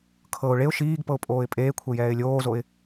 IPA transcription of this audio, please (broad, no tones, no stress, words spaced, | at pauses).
kʰɤʊ̯ ɭeʊ̯ ʃiːɡpɤʊ̯ pʼoːɪ̯pʼeːkʷʰe jɛːɪ̯lʲoːzoɪ̯